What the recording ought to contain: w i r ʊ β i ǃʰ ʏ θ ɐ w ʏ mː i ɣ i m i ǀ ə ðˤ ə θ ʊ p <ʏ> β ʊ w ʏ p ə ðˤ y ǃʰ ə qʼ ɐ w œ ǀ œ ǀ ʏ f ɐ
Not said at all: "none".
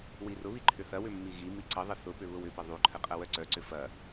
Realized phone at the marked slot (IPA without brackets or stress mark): ʏ